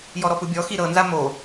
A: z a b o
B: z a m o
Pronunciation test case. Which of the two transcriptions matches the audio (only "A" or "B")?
B